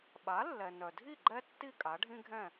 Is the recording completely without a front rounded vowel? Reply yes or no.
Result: no